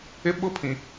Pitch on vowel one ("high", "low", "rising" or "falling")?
high